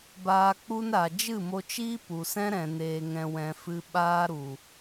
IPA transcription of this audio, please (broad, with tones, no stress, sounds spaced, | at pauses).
b aː˧ k͡p u˦ n ɾ a˨ d͡ʒ ɨ˦˨ m o˧ t͡ʃ iː˦ p u˨ s ɛ̃˦ ɾ ɛ̃˨ n eː˧ ŋ ɛ̃˧ w ɛ̃˧ f ɨ˧ ɓ aː˦ ɾ u˨